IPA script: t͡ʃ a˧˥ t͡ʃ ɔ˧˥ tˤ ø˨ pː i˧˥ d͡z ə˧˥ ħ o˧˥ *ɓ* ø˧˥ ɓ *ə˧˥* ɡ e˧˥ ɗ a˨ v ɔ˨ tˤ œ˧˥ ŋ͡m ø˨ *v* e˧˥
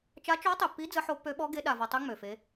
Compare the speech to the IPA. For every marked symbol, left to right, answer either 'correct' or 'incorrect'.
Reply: incorrect: pː, incorrect: ɔ˧˥, incorrect: f

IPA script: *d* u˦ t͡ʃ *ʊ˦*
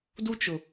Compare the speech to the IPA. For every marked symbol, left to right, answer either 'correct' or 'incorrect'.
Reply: correct, incorrect: ʊ˨

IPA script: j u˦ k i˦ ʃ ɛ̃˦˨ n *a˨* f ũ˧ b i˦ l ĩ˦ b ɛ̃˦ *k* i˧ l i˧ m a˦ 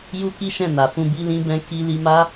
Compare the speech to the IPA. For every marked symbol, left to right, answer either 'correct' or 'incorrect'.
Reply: correct, correct

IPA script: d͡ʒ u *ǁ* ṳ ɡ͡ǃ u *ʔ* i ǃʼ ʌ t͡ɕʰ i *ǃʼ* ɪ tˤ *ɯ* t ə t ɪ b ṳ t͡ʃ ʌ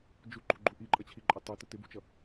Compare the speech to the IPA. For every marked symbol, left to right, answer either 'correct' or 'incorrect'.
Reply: incorrect: ǃ, correct, correct, incorrect: u

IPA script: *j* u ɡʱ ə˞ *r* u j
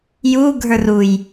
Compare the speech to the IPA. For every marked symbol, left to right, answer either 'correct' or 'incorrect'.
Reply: correct, correct

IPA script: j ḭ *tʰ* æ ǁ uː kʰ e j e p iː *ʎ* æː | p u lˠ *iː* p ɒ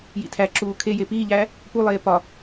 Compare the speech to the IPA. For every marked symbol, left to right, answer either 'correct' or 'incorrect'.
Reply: correct, correct, incorrect: eː

